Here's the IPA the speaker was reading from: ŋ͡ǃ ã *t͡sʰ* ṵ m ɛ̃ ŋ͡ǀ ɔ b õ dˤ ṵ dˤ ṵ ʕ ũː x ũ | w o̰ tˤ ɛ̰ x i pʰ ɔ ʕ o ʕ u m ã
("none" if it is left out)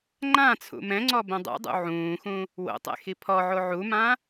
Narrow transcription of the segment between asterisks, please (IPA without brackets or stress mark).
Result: t͡sʰ